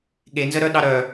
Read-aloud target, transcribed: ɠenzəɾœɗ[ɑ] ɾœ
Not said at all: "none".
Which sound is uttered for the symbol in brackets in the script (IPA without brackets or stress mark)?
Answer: ɑ